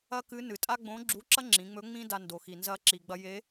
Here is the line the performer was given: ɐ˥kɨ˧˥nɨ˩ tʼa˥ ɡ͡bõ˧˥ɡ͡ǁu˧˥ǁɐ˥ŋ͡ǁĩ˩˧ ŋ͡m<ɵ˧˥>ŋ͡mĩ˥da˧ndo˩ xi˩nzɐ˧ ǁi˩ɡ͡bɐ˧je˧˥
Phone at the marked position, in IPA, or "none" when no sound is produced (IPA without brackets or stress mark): ɵ˧˥